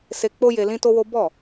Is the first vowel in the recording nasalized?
no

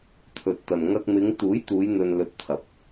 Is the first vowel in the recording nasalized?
no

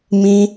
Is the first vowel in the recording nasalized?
yes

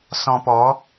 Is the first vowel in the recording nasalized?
yes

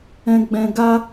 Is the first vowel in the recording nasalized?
yes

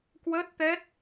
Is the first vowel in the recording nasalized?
no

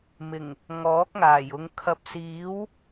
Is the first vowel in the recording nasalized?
no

